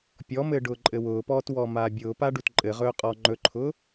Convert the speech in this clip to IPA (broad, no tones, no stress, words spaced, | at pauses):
pʲɔmɘː ɖʊːǃʼɘwʊːpɔːt wɔmaːbʲʊːpa ɖutǃʼɘʁɵː qʼɔːŋ͡ǃɵǃʰʊː